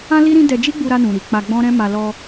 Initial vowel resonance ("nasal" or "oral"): nasal